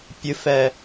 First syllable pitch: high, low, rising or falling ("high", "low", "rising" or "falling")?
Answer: low